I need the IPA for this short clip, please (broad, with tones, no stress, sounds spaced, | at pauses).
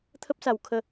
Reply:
t̪ʰ ə˦ p̚ s a˧ w kʰ ə˦